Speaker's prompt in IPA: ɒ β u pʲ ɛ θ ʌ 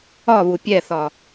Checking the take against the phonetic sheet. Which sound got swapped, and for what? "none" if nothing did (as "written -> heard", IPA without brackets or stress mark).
ʌ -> ɒ